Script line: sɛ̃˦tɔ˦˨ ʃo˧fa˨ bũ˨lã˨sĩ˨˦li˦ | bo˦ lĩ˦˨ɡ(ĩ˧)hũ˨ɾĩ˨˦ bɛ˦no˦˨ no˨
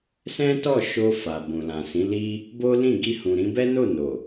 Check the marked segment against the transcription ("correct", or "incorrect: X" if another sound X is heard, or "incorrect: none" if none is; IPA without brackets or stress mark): incorrect: i˧